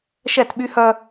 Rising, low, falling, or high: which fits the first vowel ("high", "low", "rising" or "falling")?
falling